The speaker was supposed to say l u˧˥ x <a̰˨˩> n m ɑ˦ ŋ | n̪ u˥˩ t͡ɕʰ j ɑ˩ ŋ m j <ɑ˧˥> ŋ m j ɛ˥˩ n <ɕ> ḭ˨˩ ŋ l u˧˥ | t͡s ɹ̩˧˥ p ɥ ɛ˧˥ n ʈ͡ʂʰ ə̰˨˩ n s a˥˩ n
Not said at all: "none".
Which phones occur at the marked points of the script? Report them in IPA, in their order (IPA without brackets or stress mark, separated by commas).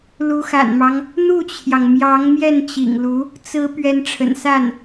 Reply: a̰˨˩, ɑ˧˥, t͡ɕ